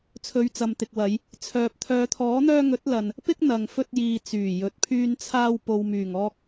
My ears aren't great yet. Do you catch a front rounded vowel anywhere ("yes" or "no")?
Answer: yes